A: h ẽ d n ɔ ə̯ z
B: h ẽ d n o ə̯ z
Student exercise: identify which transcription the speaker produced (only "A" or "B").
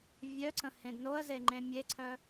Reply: B